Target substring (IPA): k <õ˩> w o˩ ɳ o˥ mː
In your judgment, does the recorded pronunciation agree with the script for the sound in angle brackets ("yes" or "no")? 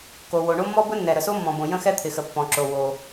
no